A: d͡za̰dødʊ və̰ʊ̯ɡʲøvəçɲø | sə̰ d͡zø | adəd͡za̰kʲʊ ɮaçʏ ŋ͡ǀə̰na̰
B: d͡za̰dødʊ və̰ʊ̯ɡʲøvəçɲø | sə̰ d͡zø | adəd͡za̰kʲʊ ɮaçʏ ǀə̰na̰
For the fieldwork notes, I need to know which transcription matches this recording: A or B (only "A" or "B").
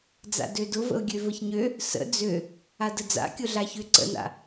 B